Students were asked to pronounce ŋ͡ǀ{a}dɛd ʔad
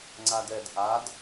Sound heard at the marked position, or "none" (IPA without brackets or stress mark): a